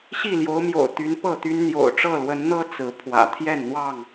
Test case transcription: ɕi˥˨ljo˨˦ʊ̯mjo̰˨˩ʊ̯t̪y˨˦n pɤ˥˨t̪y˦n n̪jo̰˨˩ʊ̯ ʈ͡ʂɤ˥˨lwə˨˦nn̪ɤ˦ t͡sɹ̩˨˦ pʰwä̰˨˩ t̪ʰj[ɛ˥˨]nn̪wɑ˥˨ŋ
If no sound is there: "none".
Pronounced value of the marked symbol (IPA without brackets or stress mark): ɛ˥˨